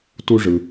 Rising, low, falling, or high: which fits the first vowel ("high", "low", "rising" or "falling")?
high